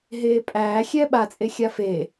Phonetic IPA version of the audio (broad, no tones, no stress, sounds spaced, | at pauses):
ɦ eː pʼ æː xʲ ɛː ɓ a t͡sʼ e xʲ a f eː